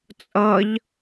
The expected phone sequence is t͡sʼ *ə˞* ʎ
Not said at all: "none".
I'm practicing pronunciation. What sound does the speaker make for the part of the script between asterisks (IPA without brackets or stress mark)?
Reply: ʌ